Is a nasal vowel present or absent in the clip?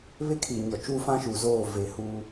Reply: present